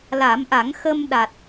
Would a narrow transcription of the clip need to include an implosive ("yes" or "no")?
yes